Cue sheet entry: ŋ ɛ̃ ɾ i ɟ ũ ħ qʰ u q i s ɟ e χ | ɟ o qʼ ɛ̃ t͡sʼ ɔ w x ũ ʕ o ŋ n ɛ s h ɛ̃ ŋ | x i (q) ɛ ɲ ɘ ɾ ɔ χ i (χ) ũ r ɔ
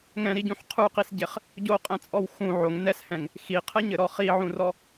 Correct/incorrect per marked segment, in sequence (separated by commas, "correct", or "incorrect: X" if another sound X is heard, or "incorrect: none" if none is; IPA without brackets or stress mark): incorrect: qʰ, incorrect: ʕ